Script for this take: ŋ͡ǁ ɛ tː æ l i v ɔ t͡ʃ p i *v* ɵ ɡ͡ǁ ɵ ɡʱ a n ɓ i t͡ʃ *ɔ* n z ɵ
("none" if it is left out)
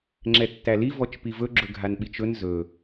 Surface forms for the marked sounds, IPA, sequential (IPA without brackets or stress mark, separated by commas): v, ɵ